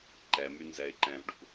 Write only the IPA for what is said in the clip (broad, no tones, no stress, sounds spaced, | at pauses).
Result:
ǃ ɛ m y n z ɛ ɪ̯ ǃ ɛ̃ v ɖ ṵ